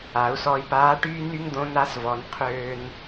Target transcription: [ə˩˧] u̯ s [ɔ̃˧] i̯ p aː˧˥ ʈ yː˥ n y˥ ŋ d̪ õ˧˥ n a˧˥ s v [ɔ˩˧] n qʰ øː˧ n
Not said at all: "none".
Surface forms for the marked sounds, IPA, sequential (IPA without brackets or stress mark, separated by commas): a˩˧, ɔ˧, ɔ˩˧